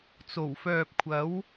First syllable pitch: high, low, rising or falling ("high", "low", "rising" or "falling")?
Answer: low